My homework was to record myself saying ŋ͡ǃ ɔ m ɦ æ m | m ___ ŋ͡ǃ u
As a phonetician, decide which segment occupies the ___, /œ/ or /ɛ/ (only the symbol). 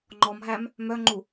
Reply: œ